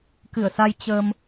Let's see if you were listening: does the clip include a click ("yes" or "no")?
no